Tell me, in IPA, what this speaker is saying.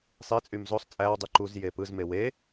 sˤit͡sʼym zosˤ t͡sʼæwdˤy ǃuz jepɯzme we

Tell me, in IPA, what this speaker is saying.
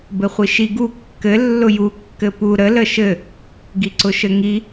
bɘχʷiʃi ɡu kːɘ lːʊju kːɘpu ɾə ləʃɘ | ɡiǀʊʃɘŋi

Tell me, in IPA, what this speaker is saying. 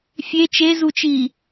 fʲe t͡ʃezut͡ʃiː

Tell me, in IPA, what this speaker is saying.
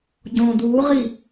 ɟõ d̪uːʁi

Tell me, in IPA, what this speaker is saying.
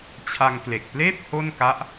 t͡ɕʰa˧ŋkle˨˩k̚pleː˥˩p̚ ho˥˩nka˦˥ʔ

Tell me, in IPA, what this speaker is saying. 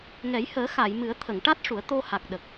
ŋɛ˨˩˦jhəː˨˩˦xa˨˩˨jmɨ˨˩˦ə̯ t̪ʰə˨˩˨ŋʈa˦˥t̚ʂu˨˩˦ə̯ t̪o˧ha˨˩k̚ɗə˨˩k̚

